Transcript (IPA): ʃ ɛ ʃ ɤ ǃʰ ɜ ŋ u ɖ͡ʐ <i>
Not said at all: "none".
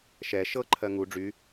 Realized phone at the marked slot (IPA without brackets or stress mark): y